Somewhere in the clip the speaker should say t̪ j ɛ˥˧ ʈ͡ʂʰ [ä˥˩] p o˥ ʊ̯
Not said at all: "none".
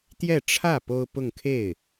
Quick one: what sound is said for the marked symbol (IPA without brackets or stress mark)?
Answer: ä˥˩